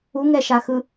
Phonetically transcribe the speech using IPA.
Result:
u ŋ ɛ ʃ a x ɯ

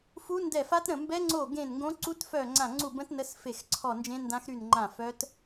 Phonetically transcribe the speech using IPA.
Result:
f u˦˥ n d ɛ˦˨ f a˦˥ t ɾ ə̃˦˨ m b ɛ˦˥ ŋ͡ǀ o˦˨ ɡ ẽ˦˨ n ŋ ɡ õ˦˥ ǀ u˦˥ t f œ˦˨ ŋ͡ǀ ã˦˨ ŋ͡ǀ u˦˨ b ə̃˦˥ t n ə˦˥ s f e˦˨ x ǀʰ ɔ˦˨ n d͡ʒ ẽ˦˥ n d ã˦˥ x ɾ y˦˨ n ŋ͡ǃ ã˦˨ f œ˦˥ t

